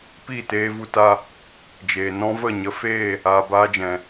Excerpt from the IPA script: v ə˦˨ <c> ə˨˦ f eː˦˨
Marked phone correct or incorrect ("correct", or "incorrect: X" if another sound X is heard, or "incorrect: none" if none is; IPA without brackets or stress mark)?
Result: incorrect: ɲ